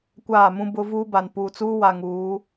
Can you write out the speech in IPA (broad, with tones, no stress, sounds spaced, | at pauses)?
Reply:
kʷ aː˦˨ m ũ˦ b ʊ˦ v uː˦ b a˨ n p uː˨ t͡s uː˦ w a˨ ŋ uː˨˦